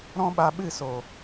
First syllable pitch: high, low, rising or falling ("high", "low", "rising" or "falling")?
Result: high